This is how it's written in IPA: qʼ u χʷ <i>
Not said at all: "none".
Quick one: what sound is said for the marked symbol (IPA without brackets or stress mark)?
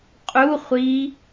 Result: i